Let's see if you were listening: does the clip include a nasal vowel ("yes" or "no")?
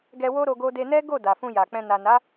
yes